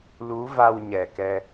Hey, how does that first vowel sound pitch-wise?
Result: rising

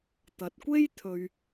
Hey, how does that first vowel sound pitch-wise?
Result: rising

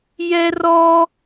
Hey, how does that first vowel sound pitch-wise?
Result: high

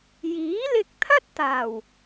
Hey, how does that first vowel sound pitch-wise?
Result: rising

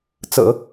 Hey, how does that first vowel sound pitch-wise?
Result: low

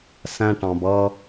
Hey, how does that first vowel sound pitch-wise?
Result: high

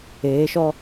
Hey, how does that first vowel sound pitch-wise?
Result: rising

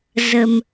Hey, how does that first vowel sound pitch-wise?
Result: low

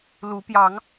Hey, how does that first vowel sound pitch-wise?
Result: rising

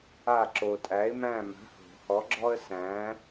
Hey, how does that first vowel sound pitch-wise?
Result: falling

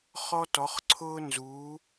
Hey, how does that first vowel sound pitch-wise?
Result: high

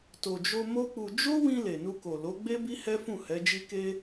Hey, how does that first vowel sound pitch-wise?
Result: low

